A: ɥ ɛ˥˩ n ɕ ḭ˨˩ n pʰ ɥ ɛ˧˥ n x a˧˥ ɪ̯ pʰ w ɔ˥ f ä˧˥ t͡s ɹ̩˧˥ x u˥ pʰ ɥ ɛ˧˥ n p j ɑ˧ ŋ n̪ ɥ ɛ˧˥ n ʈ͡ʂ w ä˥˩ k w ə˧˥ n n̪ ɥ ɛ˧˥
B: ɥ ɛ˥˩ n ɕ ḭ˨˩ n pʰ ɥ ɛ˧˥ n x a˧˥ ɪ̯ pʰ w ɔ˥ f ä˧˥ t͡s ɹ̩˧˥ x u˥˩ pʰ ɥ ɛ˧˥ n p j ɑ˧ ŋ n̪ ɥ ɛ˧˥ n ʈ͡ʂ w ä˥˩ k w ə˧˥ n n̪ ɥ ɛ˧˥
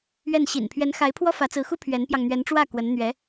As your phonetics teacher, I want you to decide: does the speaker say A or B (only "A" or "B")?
A